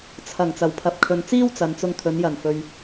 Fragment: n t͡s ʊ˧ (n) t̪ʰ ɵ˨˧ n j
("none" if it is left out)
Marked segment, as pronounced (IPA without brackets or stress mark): ŋ